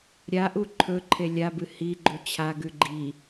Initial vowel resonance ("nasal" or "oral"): oral